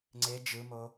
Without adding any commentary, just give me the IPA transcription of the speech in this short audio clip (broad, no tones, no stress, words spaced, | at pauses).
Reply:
ŋ͡ǀe d͡ʒɯmo